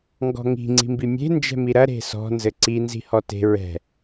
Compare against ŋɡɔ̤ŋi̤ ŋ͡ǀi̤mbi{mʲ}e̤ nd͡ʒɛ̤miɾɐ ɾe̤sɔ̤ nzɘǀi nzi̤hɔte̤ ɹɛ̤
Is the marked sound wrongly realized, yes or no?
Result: no